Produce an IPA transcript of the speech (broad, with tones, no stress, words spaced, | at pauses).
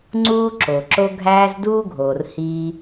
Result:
ŋ͡ǀuː˥ ǁo˩ǁo˥ ɡʱæː˥z duː˥ɡʱoː˩r hiː˥